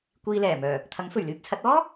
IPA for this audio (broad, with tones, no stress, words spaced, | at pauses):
kʷiː˨lɛː˨˩mœː˨˩ | t̪ʰɐ˨˥ŋfɵ˨˩ɥlyː˨˥p̚t͡sʰɐ˨˥t̚ ɔː˥